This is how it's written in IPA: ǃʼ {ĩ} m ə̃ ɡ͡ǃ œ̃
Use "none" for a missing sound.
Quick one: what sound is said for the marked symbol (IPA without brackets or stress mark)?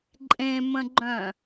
ẽ